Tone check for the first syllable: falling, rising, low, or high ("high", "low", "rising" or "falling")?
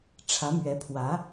rising